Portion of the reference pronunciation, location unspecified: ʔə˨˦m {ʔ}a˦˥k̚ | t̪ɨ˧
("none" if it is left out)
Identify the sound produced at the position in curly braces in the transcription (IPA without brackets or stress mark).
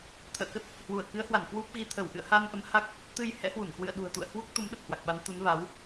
h